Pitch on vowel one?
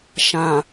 low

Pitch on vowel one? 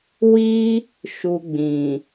high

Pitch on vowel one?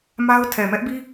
high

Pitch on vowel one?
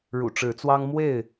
low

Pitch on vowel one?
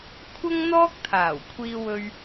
high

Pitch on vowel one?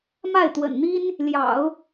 falling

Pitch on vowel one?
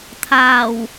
low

